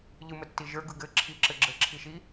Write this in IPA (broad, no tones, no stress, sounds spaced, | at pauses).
ʎ ɯ m ə tː i ʒ ə˞ ɡ ɯ ɡ ɘ ǁʰ i ǁ ɘ ɡ͡ǁ ə ǁʰ i ʃ i